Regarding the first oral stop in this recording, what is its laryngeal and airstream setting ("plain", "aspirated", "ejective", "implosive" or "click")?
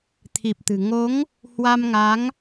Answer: aspirated